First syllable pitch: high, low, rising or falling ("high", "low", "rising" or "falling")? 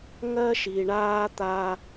high